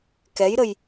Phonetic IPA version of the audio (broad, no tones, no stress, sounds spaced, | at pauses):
k ɛ j ɾ ə j